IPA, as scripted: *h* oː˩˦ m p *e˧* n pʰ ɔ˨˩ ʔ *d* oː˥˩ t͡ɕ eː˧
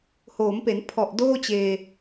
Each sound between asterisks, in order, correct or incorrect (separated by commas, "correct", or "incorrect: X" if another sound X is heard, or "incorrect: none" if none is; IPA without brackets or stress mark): correct, incorrect: e˩˦, correct